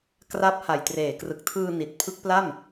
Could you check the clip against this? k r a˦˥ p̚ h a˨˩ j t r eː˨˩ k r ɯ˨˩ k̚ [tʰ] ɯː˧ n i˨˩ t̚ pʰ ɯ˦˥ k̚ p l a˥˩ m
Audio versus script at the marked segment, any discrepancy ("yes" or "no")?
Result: no